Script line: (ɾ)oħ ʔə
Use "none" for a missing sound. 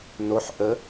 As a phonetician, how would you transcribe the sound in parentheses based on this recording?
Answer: n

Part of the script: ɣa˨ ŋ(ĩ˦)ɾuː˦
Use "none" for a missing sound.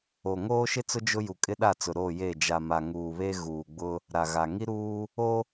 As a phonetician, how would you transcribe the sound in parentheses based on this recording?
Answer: i˦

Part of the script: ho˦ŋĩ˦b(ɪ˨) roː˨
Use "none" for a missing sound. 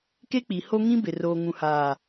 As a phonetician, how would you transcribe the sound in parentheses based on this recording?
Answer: ɪ˨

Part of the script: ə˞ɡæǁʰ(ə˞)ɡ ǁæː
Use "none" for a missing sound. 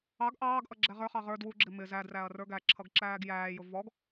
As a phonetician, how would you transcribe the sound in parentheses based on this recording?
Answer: ʌ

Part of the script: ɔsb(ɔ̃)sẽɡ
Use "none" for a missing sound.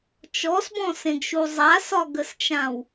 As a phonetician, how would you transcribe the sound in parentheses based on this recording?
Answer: ɔ̃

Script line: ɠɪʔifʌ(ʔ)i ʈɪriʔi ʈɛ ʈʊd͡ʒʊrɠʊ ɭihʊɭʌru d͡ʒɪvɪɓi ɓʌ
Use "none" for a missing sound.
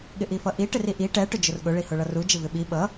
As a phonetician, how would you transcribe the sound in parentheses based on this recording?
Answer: ʔ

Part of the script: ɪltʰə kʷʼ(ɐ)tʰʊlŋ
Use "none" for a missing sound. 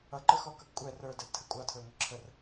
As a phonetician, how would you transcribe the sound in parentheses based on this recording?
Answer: ɑ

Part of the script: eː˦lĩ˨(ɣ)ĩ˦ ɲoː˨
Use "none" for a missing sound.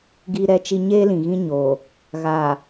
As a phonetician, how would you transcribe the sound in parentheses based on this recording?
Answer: ɣ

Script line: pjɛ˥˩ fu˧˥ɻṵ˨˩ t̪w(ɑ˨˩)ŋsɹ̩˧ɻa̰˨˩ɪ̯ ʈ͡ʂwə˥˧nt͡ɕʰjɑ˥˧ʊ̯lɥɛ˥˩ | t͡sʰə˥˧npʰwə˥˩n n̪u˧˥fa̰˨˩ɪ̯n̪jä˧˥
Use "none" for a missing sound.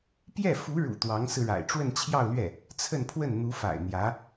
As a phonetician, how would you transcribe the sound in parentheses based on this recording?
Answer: ɑ˧˥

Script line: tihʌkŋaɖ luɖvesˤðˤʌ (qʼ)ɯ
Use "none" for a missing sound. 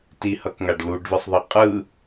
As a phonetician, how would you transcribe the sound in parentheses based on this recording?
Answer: qʼ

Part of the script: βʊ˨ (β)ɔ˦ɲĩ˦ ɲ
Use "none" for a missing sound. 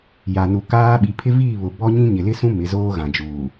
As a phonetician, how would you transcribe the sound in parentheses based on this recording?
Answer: b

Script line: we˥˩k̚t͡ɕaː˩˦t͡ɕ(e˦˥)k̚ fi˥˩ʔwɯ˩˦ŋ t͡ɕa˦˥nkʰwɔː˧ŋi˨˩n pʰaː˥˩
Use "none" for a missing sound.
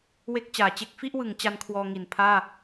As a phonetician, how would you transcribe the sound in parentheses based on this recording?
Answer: e˦˥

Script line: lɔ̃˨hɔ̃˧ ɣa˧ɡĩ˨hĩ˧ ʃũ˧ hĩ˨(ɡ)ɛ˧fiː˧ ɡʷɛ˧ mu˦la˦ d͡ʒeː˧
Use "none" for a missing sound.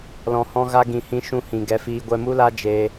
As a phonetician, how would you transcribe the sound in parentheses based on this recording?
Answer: ɡ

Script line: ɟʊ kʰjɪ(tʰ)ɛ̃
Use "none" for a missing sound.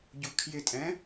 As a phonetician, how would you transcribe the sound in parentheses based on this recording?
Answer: tʼ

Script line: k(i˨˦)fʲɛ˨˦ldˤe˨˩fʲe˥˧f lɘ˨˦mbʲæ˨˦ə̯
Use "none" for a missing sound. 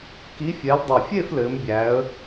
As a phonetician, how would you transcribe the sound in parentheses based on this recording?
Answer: i˨˦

